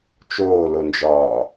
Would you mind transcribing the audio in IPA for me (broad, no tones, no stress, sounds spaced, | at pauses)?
t͡ʃ oː l o n d͡ʒ ɒː